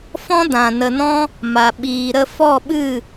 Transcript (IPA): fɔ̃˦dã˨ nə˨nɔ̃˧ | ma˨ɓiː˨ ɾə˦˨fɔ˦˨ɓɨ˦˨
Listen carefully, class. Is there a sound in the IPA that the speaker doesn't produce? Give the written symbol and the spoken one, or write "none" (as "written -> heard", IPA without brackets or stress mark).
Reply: none